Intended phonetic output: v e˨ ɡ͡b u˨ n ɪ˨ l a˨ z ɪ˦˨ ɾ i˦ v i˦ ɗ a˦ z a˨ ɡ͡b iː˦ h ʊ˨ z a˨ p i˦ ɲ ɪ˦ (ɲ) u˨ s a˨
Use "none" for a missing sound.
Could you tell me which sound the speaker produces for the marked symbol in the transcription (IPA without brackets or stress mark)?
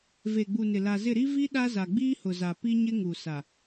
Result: ŋ